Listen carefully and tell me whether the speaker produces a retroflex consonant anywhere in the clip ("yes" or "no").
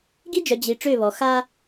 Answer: yes